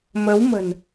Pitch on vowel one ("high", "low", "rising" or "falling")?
rising